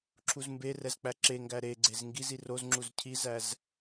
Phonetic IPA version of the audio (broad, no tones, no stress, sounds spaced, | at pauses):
ǁʰ u z m b e r ɛ z k͡p æ ǁ e ŋ ɡ æ ɾ e ɡ͡ǀ e z ŋ ɡ i z i r o z ŋ͡ǁ u z cʰ i z æ z